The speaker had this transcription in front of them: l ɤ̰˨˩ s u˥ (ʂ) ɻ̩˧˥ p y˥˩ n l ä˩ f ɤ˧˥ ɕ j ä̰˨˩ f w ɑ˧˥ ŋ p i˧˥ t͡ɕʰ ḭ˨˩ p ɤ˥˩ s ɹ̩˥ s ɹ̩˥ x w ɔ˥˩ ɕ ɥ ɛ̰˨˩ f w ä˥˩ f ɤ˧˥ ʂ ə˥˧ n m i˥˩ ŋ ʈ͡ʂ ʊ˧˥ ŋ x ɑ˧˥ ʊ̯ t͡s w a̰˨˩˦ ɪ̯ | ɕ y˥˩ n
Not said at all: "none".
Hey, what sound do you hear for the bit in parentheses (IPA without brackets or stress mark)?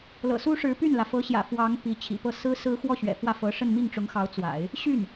ʂ